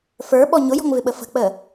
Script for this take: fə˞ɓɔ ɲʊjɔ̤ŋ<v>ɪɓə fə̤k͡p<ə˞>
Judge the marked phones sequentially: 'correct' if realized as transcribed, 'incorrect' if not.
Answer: correct, incorrect: ə

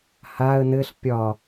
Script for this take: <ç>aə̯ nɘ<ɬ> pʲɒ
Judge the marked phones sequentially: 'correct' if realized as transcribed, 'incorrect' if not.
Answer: incorrect: h, correct

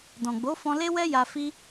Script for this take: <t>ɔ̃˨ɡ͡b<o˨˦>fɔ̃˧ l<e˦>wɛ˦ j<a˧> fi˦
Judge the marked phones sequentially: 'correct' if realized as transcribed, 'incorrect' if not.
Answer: incorrect: d, correct, correct, correct

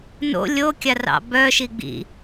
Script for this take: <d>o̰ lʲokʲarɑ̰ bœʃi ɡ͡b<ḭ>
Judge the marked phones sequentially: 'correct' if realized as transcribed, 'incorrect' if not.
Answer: incorrect: n, correct

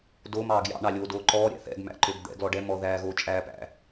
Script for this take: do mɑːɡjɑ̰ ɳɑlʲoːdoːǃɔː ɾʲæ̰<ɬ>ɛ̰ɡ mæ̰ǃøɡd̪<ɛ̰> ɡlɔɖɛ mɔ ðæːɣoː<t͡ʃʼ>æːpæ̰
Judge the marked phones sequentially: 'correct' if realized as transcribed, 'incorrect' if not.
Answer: incorrect: θ, correct, correct

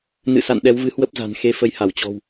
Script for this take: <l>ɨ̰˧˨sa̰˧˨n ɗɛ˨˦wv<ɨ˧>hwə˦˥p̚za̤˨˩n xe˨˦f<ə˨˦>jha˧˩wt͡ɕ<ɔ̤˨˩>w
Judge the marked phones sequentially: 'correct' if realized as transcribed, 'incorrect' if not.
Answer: incorrect: n, incorrect: ɨ˨˦, correct, correct

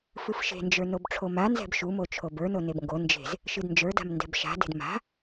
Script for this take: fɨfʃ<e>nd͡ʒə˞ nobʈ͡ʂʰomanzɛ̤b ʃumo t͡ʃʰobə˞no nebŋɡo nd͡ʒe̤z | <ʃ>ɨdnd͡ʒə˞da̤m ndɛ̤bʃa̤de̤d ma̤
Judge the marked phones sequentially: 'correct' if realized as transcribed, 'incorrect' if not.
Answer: incorrect: e̤, correct

